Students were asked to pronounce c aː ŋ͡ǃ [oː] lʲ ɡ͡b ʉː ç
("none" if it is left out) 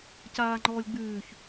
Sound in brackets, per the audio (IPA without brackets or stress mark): ɔː